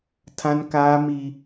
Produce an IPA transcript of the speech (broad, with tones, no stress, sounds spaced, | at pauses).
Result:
tʰ ã˦ n k aː˦ m i˦